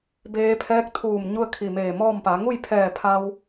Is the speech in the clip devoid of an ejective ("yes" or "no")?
yes